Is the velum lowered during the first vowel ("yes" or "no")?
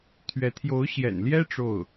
no